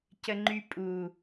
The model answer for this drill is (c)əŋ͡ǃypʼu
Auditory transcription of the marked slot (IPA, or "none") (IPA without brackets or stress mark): c